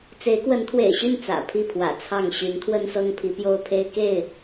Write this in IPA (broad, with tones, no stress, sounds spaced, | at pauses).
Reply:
t͡s e˨˦ ɪ̯ k w ə˨˦ n t̪ʰ w ḛ˨˩ ɪ̯ ɕ y˥˨ n t͡s ä̰˨˩ pʰ i˥˨ pʰ w ä̰˨˩ t͡sʰ ɑ˥˨ ŋ ɕ y˨˦ n t̪ʰ w ə˦ n s ɤ˦ ŋ pʰ i˨˦ p j o˦ ʊ̯ pʰ e˦ ɪ̯ k e˥˨ ɪ̯